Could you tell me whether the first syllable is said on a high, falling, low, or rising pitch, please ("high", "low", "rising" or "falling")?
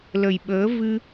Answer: low